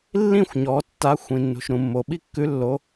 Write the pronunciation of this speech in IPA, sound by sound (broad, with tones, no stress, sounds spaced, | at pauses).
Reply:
lː ĩ˥˧ xʷ ɲ ɔ˩˧ tː a˨˥ xʷ ĩ˩ nː ṳ˩ ʃ ɾ ũ˩ mː o˩ ɓ i˥˧ kː ʉ˨˥ lː o˩˧